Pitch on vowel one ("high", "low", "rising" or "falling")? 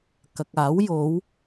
low